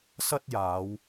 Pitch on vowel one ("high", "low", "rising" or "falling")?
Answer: high